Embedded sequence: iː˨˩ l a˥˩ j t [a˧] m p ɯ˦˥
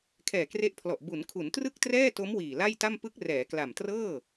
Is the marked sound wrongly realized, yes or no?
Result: yes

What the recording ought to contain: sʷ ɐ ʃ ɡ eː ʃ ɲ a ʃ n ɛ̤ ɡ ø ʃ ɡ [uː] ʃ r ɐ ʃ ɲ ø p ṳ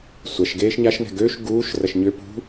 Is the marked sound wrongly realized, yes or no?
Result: no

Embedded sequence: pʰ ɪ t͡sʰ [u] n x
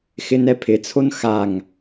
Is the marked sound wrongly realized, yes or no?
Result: yes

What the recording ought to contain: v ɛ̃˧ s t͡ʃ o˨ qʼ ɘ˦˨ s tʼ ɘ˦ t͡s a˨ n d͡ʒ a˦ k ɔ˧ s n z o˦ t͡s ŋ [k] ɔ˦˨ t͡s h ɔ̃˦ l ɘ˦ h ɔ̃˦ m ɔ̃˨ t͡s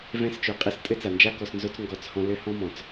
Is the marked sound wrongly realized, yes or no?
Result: yes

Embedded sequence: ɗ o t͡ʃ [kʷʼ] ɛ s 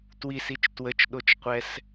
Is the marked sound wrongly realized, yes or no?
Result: yes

